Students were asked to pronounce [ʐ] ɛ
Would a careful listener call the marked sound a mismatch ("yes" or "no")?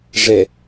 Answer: no